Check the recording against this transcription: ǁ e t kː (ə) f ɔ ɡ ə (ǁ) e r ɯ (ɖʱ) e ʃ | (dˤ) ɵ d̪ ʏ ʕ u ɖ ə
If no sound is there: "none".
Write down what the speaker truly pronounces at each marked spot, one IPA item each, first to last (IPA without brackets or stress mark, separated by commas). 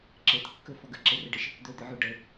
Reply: ɵ, ǁ, ɖ, d̪